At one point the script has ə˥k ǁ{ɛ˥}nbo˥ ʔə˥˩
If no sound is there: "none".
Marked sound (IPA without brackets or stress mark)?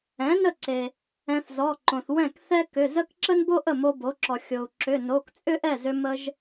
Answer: ə˥